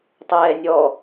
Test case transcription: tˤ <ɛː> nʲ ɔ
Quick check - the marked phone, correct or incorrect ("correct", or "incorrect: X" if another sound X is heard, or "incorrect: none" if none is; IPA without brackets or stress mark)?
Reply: correct